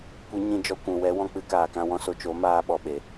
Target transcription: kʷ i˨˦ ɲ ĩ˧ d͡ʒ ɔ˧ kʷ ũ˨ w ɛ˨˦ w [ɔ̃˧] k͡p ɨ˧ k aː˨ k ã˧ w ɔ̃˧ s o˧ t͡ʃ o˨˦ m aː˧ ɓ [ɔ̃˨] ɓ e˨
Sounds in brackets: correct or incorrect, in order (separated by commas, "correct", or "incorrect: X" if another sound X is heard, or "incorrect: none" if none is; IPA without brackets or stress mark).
correct, incorrect: ɔ˨